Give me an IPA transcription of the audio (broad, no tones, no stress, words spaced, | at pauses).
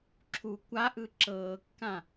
ǁʰu kʷaʔɯ ǁɤːkːã